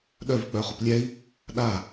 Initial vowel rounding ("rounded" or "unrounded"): rounded